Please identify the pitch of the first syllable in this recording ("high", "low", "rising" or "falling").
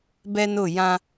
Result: high